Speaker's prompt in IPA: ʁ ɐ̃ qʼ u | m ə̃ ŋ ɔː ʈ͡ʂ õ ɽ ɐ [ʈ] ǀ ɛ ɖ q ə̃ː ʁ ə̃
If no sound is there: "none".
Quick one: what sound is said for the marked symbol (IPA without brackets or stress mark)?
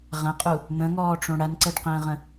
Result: n